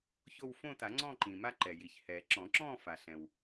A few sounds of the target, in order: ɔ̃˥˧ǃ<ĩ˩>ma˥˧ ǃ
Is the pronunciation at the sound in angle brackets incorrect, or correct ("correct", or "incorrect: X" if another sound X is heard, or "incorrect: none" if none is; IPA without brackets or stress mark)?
correct